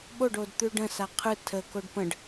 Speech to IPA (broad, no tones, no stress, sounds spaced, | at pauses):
ɓ o ɖ o d t̪ ʉ ɖ ə̃ s a qʰ ɯ tʰ ə k o ɖ p ə̃ ɖ